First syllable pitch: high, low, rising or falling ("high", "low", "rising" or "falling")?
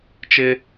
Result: high